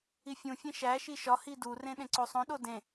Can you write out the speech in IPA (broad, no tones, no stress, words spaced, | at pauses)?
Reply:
ifʲũfʲẽ ʃæ ʃiʃɒhi durẽ ɗẽǀosˤõɗo dẽ